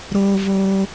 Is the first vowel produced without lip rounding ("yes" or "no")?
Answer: no